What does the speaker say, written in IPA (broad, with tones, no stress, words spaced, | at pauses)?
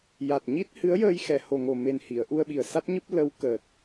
ja˨˩t̚ɲi˦˥t̚hɨ˧˥ə̯jəː˧j xɛ˨˩˨ho˨˩ŋo˨˩me˨˩n hi˨˩˨ə̯ ʔu˧ə̯ɓi˨˩ə̯sa˦˥t̚ɲɨ˦˥p̚ lə˧˥wkəː˨˩t̚